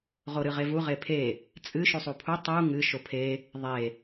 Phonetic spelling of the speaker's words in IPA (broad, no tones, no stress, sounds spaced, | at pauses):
ʁ o ɾ ɨ ʁ e v u ʁ e pʰ e | t͡sʼ ɨ ʃ u sˤ u pʰ u tˤ u ŋ ɨ ʃ o pʰ e | ðˤ e